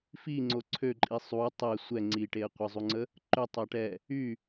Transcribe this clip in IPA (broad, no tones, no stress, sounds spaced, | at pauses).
f i ŋ͡ǀ o ǀʰ ø ǃʼ i sˤ u tˤ ɛ sʷ ɛ ŋ͡ǀ i ʈ e ə̯ qʷ ə zˤ u ŋ͡ǀ ə | ǃ ø tˤ a ʈ ɛ | y